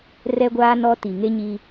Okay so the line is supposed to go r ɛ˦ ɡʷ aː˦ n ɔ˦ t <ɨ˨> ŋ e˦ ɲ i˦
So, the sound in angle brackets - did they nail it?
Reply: no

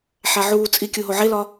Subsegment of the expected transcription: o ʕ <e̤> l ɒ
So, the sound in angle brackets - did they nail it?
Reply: no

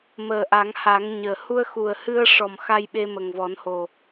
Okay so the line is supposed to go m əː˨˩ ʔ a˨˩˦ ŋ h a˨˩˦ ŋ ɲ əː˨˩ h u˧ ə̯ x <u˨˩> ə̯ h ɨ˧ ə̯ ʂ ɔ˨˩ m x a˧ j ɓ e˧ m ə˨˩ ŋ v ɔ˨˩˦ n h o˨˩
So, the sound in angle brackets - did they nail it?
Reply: yes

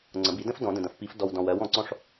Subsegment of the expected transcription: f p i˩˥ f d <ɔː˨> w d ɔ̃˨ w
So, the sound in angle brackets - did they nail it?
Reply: no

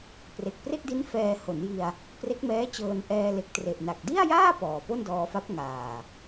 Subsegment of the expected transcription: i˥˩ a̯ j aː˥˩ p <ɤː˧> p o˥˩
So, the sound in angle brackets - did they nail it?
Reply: no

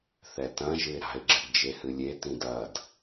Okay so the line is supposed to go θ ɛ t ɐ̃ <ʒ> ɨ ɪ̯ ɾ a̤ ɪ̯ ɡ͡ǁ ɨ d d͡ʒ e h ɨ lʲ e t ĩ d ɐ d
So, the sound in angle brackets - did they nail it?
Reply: yes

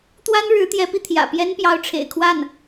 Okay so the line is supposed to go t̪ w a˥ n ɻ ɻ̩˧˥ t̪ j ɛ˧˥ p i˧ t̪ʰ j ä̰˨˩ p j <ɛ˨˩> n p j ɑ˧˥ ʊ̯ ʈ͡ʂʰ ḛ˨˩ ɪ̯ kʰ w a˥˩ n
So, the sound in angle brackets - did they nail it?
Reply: no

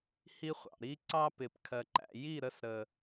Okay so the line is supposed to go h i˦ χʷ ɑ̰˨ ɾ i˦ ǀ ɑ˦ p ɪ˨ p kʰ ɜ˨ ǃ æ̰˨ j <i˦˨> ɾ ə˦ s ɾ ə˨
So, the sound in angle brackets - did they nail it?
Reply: yes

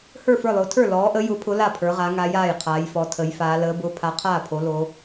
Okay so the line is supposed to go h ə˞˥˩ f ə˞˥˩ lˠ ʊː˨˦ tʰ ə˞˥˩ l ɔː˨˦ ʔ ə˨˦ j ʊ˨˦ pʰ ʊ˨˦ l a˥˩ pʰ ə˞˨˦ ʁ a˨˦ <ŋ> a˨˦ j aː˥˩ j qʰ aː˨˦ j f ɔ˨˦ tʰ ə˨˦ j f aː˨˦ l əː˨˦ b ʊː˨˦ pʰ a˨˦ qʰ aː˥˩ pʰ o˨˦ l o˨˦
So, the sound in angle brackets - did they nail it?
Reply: yes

